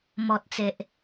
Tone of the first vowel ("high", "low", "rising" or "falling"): low